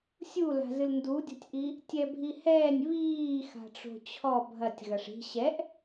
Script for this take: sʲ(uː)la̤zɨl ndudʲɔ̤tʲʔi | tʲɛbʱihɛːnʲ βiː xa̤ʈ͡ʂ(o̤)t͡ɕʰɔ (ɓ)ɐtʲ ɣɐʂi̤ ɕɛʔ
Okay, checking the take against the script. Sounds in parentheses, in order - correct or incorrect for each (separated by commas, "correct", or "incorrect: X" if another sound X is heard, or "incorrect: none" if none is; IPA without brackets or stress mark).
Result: incorrect: u, correct, incorrect: bʱ